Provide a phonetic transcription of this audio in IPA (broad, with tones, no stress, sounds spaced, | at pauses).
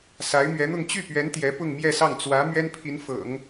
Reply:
s a˧˥ ɪ̯ m ɥ ɛ˧˥ n̪ ʊ˥˧ ŋ t͡ɕ y˥˩ p ɥ ɛ˧˥ n t̪ j ɛ˧˥ p ʊ˥˧ ŋ m j ɛ˥˧ s ɑ˥˩ ŋ t͡s w ä˧˥ m ɥ ɛ˥ n pʰ i˧˥ n f ɤ̰˨˩˦ ŋ